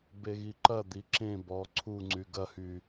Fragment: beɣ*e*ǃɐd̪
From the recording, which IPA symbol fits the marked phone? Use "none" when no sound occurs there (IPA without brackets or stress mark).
i